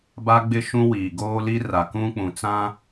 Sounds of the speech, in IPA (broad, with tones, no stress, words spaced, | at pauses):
ba˦ɡ͡bɪ˦ ʃũ˦wiː˨ ɡoː˦li˦ra˨ kũ˦k͡pũ˨t͡sã˦